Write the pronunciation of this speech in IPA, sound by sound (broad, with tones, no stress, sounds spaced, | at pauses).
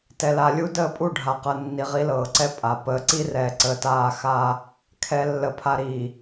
t ɛ˨ l a˨ lʲ u˦ d əː˦˨ pʼ u˦˨ ɖʱ aː˨ q ɤ˨ nː i˨ ʁ i˦ l ɤː˨ ǀ ɛ˦ pʼ a˨ p əː˨ ǀ i˦ r ɛː˨ ǀ əː˨ t aː˦˨ x aː˦ | kʰ ɛ˨ lː ə˨ pʰ a˨ ɾ iː˨